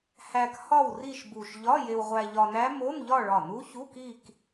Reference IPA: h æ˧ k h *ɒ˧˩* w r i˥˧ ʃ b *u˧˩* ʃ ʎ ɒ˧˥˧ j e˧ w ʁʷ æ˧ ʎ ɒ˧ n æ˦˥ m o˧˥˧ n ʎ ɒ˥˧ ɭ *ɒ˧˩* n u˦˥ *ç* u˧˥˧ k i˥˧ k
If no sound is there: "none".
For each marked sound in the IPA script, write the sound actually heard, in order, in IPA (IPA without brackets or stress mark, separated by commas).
ɒ˥˧, u˧˩, ɒ˧˩, ç